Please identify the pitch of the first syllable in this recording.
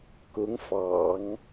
rising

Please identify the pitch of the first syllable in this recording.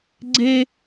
high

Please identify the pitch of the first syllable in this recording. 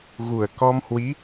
low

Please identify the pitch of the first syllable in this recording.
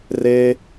high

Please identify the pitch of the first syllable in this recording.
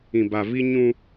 low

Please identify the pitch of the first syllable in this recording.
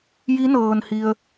rising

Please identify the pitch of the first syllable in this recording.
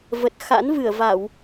low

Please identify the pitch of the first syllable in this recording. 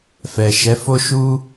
low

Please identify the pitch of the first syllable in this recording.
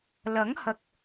rising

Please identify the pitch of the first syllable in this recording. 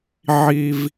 high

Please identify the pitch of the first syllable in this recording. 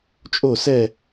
falling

